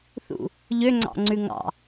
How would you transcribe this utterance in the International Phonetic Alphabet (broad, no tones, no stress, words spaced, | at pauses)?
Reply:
θṵ | ʎøŋ͡ǀɑ̰ŋ͡ǀʉ ŋɑ̰